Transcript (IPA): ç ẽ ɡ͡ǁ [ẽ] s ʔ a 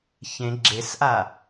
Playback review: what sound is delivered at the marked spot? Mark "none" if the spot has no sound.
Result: e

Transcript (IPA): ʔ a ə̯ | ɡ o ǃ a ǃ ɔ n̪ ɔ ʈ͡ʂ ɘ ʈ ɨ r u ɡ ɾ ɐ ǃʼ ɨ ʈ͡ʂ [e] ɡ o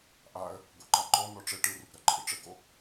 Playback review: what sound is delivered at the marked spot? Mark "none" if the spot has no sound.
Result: ɘ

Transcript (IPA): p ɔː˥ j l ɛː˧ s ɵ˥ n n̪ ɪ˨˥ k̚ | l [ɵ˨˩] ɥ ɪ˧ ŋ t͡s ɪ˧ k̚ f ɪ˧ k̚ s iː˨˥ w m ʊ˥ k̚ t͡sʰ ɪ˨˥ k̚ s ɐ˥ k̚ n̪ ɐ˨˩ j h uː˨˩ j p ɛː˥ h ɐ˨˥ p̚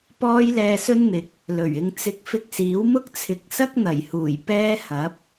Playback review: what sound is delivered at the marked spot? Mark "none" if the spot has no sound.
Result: ɵ˨˩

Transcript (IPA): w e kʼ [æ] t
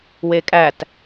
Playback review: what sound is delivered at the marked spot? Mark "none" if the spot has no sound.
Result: æ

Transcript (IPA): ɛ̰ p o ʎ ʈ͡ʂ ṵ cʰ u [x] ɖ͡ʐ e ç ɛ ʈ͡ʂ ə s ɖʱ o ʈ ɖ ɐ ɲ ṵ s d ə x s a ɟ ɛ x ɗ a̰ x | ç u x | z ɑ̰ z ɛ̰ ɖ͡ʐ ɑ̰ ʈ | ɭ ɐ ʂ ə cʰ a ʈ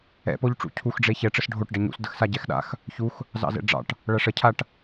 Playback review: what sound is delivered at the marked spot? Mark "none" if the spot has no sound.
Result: x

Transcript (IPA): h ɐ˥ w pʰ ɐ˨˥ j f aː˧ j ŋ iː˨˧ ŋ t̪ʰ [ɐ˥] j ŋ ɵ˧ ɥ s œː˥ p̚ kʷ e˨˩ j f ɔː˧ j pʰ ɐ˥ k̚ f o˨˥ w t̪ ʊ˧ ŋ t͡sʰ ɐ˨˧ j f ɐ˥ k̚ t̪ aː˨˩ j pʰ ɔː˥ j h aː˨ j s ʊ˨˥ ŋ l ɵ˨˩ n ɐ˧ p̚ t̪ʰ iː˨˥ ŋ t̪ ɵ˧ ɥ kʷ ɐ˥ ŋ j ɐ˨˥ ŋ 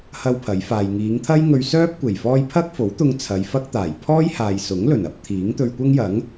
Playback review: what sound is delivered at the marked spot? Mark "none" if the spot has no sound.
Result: ɐ˥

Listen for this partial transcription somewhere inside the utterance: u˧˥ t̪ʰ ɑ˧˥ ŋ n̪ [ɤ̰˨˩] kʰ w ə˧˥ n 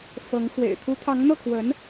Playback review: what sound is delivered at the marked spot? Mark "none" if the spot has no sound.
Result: ɤ˥˩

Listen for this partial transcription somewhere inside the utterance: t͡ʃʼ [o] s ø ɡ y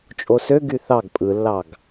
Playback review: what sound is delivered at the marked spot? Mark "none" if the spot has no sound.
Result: o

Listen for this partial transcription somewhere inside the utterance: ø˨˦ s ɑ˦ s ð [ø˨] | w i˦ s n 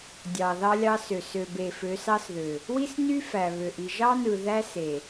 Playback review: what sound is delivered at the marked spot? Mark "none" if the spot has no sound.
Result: ø˨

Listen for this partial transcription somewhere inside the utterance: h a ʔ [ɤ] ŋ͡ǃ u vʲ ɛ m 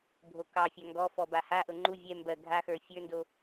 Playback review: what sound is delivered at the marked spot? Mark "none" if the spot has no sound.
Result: ɤ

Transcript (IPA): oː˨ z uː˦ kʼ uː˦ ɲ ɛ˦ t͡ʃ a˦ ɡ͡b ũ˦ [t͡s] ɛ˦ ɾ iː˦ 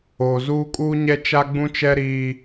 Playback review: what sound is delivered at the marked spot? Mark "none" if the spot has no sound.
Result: t͡ʃ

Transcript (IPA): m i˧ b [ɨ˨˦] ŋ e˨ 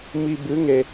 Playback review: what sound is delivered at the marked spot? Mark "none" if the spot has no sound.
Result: ɨ˨˦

